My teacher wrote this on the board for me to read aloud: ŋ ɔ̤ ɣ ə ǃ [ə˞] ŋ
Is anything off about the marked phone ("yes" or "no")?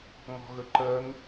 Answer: yes